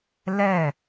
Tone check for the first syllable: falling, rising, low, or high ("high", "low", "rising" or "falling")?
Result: falling